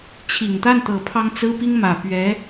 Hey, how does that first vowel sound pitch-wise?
low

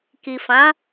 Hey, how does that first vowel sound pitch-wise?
low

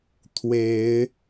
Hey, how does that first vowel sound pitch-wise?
rising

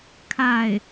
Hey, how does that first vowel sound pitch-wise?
falling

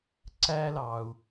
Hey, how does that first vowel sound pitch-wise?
high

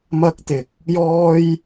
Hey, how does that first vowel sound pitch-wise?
high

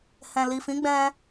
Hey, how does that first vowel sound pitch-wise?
low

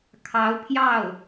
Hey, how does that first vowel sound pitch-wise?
rising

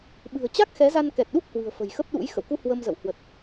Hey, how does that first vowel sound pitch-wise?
low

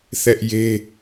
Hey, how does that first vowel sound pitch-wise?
high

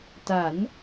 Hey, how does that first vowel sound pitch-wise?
rising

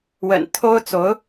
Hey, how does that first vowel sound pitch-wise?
low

